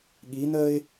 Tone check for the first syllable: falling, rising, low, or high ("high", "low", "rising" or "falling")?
rising